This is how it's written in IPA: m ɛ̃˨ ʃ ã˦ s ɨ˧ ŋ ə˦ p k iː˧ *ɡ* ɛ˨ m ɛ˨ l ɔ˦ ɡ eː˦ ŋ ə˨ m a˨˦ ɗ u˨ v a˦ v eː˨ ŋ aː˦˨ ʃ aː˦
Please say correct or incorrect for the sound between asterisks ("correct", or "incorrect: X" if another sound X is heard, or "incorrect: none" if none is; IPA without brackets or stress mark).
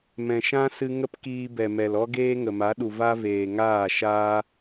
incorrect: b